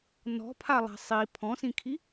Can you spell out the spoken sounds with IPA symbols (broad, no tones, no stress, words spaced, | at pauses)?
nɔ̤pʰalˠa̤ sˤi pʰɔ̃sĩkʰi